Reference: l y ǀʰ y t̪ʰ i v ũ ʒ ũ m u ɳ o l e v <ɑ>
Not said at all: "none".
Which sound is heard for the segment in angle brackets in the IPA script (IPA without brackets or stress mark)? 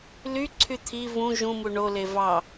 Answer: ɑ